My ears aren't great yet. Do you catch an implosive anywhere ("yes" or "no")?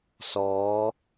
no